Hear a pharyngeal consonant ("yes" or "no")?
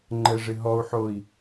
yes